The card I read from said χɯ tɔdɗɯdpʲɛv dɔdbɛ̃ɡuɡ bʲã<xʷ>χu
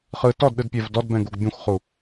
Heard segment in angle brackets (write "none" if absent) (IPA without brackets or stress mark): xʷ